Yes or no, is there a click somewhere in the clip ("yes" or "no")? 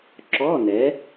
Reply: yes